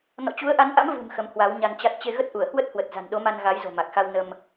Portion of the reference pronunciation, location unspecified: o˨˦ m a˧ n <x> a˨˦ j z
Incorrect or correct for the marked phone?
incorrect: ɣ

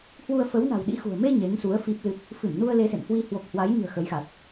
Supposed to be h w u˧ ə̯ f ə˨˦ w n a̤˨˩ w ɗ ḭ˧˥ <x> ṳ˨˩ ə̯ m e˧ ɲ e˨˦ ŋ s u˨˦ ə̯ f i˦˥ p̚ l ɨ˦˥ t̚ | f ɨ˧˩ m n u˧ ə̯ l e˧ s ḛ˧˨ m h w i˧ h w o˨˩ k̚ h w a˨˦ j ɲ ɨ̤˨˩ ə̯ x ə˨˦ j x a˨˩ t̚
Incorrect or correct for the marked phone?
correct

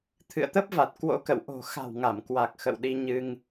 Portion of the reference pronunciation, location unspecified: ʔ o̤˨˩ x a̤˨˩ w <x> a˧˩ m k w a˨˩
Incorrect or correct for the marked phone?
incorrect: ŋ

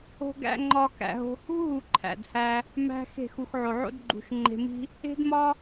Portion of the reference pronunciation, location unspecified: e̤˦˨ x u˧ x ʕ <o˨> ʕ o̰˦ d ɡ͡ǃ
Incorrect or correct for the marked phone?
correct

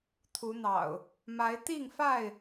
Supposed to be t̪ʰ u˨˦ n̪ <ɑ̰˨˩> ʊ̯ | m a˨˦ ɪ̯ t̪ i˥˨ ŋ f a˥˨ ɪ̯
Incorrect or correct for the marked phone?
correct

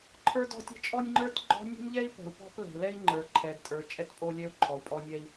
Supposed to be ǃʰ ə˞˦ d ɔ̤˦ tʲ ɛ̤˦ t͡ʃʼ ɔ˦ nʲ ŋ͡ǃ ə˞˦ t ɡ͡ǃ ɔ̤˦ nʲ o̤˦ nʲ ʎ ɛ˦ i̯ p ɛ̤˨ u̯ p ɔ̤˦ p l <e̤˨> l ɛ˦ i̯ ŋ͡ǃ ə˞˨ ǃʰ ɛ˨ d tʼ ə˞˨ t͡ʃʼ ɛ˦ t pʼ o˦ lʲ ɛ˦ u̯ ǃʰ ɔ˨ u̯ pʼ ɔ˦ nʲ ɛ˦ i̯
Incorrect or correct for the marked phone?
incorrect: ɛ̤˨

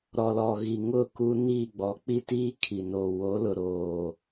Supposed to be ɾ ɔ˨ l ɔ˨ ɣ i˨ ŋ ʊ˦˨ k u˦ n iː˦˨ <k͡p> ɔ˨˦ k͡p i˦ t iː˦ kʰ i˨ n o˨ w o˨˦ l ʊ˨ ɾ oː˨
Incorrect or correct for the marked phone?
incorrect: ɡ͡b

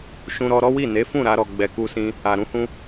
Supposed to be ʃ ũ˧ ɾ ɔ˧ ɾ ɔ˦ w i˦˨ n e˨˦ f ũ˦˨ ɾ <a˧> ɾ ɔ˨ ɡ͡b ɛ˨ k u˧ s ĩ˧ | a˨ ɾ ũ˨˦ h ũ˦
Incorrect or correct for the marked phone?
correct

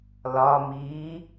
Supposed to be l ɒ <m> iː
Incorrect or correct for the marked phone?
correct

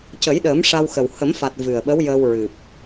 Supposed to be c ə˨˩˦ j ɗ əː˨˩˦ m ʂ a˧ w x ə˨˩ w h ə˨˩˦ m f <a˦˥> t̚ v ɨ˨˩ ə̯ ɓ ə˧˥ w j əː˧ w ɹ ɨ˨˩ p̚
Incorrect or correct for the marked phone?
incorrect: a˨˩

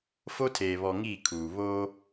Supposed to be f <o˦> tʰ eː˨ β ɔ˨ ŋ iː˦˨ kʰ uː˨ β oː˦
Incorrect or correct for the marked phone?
correct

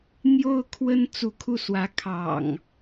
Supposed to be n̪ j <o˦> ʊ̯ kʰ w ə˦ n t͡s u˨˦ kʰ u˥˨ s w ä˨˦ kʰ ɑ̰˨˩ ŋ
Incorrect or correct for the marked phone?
correct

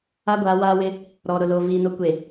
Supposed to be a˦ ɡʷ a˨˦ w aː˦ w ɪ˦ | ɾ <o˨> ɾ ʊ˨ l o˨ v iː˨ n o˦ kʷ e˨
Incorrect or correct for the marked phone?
incorrect: ɔ˨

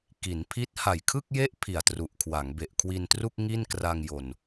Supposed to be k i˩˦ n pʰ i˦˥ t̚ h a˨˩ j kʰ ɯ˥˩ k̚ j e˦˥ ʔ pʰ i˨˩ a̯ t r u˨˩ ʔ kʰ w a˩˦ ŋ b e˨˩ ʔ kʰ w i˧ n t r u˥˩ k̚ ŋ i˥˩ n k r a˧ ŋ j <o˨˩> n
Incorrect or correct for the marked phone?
correct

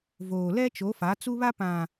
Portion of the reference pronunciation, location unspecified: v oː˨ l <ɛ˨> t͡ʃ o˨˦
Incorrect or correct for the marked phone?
incorrect: ɛ˦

